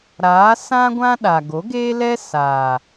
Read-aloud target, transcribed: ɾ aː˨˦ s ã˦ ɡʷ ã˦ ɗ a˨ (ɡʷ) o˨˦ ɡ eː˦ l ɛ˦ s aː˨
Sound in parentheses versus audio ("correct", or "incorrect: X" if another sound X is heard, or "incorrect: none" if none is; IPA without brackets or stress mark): incorrect: ɡ